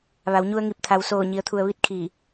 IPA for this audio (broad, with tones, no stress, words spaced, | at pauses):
ʋa˩˧wɲu˧ə̯ŋi˧˩p̚ t̪ʰa˩wsoː˧˩ ɲi˩ə̯t̪ʰu˩ə̯ʋi˧t̚ kʰiː˧˩